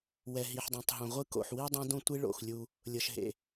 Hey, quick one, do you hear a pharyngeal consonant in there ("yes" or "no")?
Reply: yes